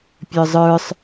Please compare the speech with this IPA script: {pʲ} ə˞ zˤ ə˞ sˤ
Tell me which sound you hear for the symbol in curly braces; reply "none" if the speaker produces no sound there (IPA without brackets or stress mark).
pʲ